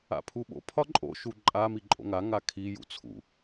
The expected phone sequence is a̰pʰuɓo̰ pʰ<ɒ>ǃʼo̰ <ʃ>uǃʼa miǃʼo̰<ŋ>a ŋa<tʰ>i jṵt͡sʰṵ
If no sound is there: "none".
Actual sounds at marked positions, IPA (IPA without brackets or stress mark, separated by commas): ɒ, ʃ, ŋ, kʰ